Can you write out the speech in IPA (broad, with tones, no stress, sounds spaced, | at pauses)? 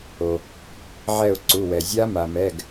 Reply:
o˩ | ʕ ɛ˦˨ ʊ̯ ǀ u˩˧˩ w ɛ˩ zʲ a˦˥ m a˩ m ɛ˩˧˩ ɡ